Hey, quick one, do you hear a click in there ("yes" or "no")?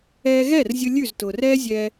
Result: no